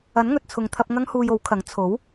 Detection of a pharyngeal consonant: absent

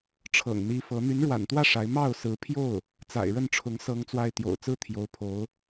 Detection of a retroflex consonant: present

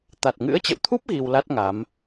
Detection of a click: absent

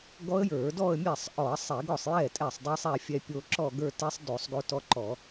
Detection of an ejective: present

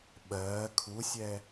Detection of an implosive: present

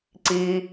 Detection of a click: present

